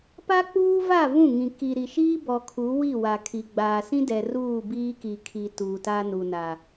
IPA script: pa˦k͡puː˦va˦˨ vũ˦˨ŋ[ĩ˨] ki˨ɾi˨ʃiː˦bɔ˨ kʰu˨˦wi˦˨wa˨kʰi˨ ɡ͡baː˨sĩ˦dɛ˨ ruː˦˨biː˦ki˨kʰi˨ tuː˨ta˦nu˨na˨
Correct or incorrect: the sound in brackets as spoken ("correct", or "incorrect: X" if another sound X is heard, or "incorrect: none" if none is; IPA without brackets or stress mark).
correct